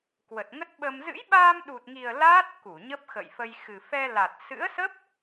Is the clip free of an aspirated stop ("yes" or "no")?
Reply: yes